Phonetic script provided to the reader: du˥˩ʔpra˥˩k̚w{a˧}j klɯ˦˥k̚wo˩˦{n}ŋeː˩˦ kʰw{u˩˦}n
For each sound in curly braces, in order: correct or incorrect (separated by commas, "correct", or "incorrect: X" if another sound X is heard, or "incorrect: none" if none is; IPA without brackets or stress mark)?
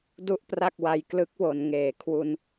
correct, correct, incorrect: u˧